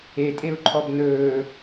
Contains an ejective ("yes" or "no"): yes